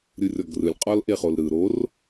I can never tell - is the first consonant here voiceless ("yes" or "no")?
no